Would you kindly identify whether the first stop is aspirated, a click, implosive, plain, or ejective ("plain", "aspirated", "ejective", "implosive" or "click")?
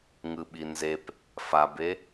implosive